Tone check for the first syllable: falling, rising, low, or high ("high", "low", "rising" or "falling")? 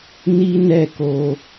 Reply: high